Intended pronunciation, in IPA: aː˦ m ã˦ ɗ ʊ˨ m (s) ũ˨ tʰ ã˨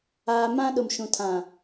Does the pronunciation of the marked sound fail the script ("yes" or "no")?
yes